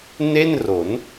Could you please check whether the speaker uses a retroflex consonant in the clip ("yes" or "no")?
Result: no